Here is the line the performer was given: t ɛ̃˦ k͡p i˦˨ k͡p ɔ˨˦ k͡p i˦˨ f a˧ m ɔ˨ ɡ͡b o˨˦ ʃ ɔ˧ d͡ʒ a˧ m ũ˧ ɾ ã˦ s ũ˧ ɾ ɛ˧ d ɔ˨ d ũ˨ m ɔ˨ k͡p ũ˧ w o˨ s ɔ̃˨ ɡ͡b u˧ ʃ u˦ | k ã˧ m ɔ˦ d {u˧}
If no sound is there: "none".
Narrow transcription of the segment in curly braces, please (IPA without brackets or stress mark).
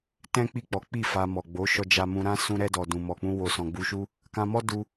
u˧